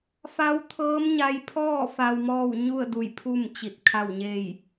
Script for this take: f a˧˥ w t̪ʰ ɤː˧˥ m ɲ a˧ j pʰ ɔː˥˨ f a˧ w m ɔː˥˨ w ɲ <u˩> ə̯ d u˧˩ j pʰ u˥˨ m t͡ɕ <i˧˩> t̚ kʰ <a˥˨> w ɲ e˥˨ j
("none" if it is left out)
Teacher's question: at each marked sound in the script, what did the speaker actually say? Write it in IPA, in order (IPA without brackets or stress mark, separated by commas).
u˥˨, i˧˩, a˥˨